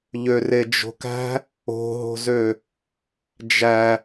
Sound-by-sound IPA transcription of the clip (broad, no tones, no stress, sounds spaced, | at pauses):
ʎ ø r e d͡ʒ o̤ k æ̤ | o̤ ɦ o̤ z ø | d͡ʒ æ